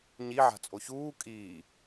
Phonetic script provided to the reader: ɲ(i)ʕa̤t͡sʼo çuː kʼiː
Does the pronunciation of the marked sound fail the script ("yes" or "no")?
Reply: no